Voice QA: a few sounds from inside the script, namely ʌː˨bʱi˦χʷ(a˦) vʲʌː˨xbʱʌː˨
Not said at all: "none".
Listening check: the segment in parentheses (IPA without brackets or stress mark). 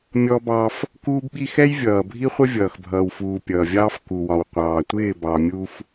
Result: ə˦